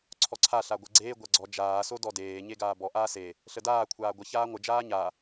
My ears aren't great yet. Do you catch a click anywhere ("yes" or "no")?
yes